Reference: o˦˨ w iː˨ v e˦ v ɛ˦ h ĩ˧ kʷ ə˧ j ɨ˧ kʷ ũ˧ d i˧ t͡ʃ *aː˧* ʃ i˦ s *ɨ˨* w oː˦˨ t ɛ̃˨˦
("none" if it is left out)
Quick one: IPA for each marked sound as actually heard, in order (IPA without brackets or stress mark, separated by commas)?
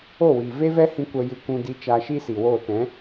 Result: aː˧, i˨